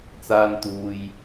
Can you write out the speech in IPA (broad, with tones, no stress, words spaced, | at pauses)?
t͡saː˥n t̪uː˧j